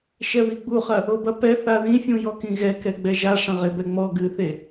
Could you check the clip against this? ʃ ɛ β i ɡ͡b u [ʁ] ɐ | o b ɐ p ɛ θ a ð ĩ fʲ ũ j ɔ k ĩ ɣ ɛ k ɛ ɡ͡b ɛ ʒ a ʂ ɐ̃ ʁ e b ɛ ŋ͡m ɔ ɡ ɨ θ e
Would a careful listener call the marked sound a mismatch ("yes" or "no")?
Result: yes